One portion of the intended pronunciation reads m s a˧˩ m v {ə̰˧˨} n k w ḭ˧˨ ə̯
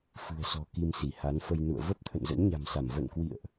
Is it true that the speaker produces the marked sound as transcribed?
yes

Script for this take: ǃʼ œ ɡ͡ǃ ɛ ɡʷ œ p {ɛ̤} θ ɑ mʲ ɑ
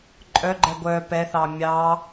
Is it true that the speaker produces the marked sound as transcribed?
no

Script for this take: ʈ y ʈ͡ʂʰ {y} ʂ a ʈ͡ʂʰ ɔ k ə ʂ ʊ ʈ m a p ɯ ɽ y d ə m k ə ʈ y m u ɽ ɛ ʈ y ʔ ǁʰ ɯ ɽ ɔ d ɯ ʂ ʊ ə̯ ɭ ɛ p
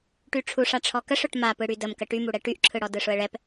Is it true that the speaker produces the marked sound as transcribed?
no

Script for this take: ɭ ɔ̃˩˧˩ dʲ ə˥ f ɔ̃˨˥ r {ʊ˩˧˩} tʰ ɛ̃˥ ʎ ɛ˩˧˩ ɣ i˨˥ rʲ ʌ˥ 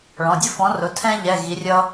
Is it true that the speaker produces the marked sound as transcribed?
yes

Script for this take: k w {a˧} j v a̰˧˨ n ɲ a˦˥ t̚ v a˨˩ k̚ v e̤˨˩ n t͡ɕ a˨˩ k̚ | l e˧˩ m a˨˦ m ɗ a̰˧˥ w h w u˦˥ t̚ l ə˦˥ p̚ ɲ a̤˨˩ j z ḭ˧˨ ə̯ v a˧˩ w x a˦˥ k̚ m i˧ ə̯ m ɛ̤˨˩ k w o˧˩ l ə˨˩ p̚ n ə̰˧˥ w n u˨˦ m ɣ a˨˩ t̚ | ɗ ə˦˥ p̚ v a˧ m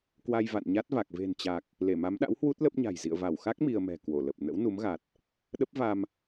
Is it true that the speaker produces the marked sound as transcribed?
yes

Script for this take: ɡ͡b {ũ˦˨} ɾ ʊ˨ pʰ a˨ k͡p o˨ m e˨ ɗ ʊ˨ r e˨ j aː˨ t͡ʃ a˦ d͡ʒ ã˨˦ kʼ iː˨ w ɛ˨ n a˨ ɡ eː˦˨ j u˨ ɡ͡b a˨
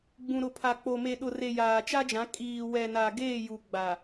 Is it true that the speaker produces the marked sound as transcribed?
no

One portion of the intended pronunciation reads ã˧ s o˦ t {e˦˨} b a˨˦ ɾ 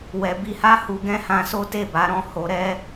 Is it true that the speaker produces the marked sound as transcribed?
yes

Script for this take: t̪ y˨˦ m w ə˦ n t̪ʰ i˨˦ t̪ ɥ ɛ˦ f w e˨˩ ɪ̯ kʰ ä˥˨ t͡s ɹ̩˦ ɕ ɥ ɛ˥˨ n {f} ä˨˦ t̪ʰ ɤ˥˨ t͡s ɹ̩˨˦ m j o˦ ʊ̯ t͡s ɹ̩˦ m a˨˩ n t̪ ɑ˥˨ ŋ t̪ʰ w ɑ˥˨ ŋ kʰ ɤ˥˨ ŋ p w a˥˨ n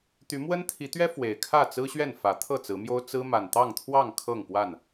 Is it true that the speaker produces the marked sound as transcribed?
yes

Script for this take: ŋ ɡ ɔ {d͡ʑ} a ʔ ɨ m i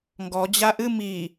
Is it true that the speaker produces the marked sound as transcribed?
yes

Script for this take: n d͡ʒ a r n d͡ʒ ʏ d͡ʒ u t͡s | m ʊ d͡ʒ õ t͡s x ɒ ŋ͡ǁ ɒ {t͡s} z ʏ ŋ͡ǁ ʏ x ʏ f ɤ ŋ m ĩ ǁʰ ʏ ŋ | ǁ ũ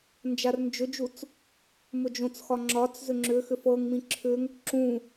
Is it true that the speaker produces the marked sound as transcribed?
yes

